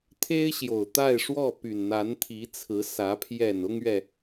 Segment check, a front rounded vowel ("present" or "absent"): present